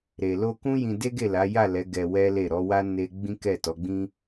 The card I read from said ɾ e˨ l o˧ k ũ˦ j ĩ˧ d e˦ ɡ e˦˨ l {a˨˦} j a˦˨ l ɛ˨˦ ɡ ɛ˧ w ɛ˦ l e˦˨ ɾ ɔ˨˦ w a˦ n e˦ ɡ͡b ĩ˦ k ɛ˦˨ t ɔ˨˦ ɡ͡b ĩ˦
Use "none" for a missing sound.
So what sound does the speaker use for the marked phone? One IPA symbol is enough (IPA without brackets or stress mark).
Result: a˨˦